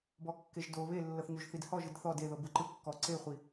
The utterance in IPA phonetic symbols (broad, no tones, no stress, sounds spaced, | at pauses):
b ɔ kː e ʒ d o β e lː ɤ θ ɲ o ʒ θ i d h ɔ ʒ ɯ d θ ɔ d e ð ɤ b ɯ ǃ ɯ kː ɔ ǀ e χʷ i